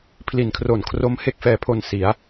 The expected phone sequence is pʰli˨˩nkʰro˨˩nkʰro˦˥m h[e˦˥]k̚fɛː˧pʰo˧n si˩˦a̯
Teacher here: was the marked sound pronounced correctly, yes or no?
no